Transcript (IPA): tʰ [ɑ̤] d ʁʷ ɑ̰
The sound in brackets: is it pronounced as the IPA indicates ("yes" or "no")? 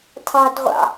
yes